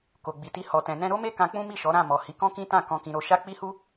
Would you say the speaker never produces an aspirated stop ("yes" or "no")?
yes